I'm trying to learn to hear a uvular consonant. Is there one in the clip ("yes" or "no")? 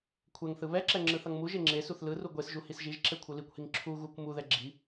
no